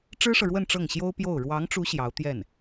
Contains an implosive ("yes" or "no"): no